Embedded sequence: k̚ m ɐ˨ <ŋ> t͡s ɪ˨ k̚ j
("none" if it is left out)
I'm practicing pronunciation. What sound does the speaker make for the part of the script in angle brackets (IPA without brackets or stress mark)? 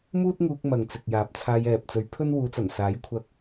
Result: ŋ